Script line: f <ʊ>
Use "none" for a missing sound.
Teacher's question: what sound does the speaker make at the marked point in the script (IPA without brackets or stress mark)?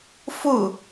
ʊ